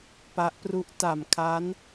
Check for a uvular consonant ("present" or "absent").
absent